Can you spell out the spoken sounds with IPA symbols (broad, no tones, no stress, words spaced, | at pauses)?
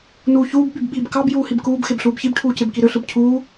nuːçuːb ɓybɓiːbkɑb juːhibkuːb xebɬuːbçib ʈʰuːcebkiɾø ɬɯbcʰuː